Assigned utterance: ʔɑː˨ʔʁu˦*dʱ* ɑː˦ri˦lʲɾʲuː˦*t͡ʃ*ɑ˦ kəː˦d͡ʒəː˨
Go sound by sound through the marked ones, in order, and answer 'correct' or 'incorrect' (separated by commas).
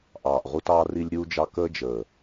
incorrect, incorrect